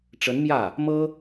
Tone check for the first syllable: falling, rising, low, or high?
rising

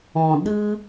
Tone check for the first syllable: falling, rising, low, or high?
low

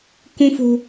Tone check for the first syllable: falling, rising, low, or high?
high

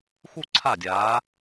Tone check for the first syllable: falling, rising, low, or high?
falling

